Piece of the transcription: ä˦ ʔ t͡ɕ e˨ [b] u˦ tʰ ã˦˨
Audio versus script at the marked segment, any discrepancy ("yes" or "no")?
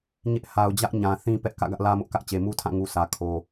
yes